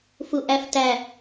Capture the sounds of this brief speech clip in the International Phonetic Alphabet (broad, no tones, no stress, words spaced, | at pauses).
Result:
fuʔæftæ